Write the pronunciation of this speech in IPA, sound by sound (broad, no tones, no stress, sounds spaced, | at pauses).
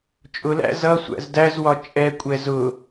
t͡ʃʼ ʊ l æ̰ z ʌ sʷ æ̰ z d æ z w ɒ t͡ʃʼ ɛ kʷʼ ɛ z ʊ